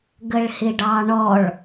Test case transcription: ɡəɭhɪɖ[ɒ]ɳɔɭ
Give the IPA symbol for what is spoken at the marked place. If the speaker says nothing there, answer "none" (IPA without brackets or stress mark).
ɑ